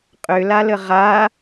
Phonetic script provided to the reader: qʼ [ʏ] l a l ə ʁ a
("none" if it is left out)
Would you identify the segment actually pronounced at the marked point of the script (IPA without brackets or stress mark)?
ʏ